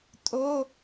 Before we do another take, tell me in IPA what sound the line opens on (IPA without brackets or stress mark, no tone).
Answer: tʼ